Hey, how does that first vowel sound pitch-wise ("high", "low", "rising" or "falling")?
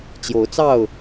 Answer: rising